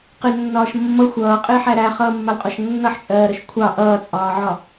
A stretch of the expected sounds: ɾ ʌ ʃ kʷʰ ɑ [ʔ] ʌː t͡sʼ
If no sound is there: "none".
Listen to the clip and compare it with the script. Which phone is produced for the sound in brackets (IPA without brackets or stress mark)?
ʔ